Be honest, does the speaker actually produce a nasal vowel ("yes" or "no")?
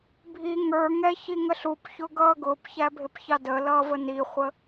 no